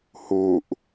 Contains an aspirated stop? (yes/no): no